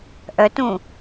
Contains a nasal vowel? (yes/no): yes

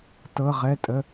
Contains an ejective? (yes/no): yes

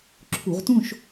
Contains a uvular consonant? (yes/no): yes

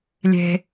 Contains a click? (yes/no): no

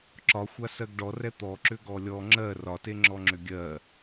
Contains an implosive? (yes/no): no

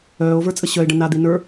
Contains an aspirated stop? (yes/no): no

